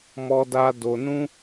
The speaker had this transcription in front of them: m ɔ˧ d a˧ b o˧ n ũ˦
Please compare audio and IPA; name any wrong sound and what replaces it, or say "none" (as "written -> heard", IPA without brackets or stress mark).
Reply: b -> d